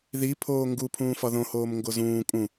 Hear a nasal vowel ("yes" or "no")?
yes